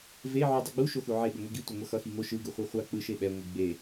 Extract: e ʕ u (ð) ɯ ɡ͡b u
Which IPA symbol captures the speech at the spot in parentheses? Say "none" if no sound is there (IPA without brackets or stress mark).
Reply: dˤ